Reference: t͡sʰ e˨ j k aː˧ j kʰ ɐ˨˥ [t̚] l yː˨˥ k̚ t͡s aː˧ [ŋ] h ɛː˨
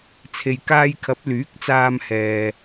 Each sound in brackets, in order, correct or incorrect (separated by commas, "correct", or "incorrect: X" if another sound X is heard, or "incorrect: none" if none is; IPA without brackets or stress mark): incorrect: p̚, incorrect: m